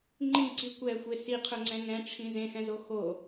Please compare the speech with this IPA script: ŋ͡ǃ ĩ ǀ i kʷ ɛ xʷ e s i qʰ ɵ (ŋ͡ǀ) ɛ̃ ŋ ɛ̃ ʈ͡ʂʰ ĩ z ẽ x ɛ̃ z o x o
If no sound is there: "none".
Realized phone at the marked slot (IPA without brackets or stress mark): ŋ͡ǀ